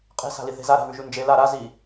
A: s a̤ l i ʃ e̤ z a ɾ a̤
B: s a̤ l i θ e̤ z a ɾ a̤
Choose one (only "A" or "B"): B